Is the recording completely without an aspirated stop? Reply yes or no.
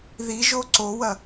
yes